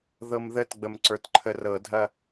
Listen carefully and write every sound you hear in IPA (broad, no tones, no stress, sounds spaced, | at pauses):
ð ɤ m ð ə t ɡ͡b ə m ǀ ə˞ t ǃʰ ə r ɤ dʱ ɐ